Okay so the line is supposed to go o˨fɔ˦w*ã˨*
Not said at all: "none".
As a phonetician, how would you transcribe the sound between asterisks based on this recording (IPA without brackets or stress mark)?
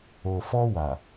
a˨